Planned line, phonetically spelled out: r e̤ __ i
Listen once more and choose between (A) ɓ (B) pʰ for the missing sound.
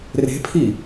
B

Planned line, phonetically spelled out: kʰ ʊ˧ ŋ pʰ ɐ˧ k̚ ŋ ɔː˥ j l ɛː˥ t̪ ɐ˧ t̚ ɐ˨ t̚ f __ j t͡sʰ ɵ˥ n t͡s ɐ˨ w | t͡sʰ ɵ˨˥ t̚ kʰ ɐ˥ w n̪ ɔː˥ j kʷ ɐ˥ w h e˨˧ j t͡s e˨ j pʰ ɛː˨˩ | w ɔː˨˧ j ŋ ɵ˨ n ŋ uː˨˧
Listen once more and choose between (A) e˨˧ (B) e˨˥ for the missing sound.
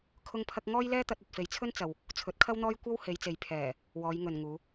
A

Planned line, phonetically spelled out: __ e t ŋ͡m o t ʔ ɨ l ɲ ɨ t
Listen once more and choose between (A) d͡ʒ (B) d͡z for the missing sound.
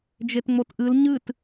A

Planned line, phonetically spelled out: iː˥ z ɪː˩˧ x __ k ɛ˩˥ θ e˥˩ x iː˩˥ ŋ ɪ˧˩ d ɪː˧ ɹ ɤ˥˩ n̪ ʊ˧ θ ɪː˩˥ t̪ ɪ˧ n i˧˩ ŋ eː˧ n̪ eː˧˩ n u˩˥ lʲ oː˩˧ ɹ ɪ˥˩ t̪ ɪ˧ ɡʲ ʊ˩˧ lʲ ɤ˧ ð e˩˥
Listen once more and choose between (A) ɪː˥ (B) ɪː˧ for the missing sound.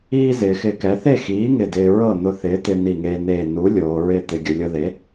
B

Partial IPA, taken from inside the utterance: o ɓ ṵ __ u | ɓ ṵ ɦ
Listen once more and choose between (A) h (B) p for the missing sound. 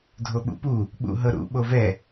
B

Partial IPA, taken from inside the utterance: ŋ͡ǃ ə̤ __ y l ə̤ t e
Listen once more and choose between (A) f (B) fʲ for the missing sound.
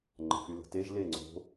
A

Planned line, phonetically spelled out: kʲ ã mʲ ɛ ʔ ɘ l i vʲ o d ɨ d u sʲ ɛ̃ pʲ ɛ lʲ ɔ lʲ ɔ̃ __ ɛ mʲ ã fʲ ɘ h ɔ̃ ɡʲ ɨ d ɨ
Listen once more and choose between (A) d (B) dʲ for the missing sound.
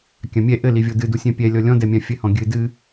A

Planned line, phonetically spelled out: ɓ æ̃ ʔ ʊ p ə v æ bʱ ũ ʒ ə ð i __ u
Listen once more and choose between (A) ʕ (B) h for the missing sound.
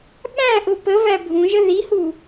B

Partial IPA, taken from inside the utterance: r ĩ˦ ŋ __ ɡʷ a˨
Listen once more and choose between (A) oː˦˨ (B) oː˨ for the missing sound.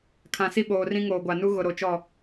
B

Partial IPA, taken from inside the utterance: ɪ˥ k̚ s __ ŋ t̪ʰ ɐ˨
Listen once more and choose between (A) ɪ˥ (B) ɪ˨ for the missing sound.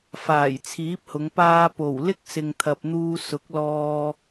B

